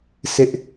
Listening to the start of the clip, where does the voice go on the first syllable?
high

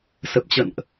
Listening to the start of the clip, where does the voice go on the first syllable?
low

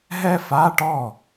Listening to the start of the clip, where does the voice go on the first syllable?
high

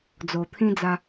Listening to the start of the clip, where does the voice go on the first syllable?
low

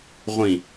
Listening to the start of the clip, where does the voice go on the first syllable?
falling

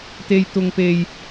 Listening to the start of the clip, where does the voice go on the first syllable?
high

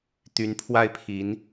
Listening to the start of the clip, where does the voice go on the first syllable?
rising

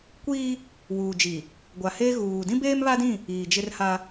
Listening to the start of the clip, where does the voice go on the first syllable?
high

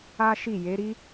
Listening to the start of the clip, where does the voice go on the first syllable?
high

